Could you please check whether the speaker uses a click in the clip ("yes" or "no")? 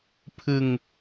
no